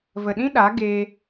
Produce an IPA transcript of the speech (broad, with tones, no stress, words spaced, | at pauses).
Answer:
və˨ɗĩ˦ ɗa˨˦ɡeː˧